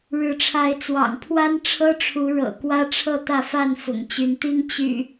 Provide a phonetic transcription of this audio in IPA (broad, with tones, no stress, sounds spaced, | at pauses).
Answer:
ɻ ɻ̩˨˦ ʈ͡ʂʰ a˨˦ ɪ̯ t͡s w ɑ̰˨˩ ŋ pʰ w a˦ n ʈ͡ʂʰ ɤ˦ ʈ͡ʂʰ u˨˦ ɻ ɤ̰˨˩ k w ä˦ ʈ͡ʂʰ ɤ˥˨ t̪ ä˥˨ f a˥˨ n f ʊ̰˨˩ ŋ t͡ɕ y˨˦ n t̪ i˦ ŋ t͡ɕ y̰˨˩